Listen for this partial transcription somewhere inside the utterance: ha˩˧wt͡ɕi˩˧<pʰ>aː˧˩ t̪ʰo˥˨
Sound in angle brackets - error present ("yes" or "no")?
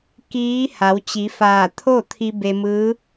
yes